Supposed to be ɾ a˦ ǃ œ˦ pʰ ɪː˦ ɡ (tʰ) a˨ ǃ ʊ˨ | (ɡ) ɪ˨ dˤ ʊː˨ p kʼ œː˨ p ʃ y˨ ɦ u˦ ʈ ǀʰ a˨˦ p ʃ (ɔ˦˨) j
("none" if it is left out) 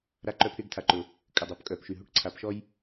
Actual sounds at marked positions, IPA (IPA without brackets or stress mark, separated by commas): tʰ, kʼ, ɔ˦